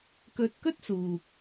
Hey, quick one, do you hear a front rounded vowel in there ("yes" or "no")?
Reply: no